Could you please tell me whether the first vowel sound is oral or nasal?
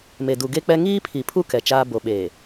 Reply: oral